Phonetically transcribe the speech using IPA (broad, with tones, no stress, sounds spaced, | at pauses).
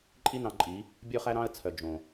ǃʼ i˦ n ɑ̃˧ ǃʼ i˨˦ | bʲ ɵː˦ χ æ˦ ɾ ɑ̃˦ ə̯ t͡sʰ œ˨ d͡ʒ õ˨